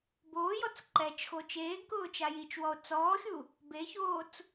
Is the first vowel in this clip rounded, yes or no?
yes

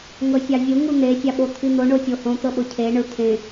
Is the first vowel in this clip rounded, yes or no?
no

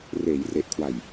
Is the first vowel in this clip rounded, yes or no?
no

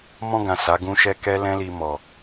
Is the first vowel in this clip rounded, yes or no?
yes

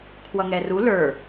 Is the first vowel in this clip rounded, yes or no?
no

